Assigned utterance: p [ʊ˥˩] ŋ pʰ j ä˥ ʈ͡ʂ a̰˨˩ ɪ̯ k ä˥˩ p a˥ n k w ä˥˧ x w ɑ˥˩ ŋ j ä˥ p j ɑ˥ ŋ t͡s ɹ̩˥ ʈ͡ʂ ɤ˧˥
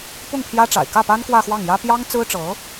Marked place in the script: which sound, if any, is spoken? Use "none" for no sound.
ʊ˥˩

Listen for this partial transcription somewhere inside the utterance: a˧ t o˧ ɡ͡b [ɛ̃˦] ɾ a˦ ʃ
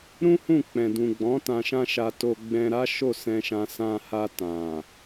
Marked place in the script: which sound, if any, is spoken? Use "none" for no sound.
ɛ̃˧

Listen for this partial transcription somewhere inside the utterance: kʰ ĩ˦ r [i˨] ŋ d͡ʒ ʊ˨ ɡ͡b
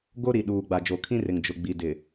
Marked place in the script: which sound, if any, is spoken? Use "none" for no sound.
ɪ˨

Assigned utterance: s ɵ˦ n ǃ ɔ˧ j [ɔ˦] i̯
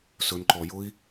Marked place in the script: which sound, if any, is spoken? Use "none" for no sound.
ʊ˦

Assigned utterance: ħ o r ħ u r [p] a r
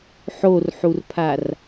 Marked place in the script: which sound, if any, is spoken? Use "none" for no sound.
pʰ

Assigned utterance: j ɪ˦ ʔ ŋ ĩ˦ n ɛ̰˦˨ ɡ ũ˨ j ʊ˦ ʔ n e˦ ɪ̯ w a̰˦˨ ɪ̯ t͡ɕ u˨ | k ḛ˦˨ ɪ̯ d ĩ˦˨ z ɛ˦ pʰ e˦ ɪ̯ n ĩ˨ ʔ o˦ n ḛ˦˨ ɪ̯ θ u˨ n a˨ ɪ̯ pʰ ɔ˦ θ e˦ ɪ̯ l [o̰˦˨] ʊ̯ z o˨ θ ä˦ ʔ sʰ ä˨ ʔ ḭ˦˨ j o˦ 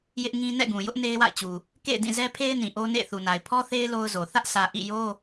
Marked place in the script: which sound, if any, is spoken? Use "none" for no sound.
o˦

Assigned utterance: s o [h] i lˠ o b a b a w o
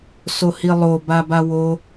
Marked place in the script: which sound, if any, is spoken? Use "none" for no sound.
h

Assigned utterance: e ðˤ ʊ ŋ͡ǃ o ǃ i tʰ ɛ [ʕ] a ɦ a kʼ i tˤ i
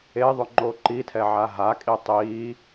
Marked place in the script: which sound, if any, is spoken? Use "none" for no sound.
ʕ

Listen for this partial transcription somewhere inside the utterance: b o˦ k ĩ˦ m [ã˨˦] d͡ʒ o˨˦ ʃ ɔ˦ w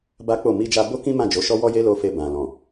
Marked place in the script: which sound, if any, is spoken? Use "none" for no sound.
ã˦˨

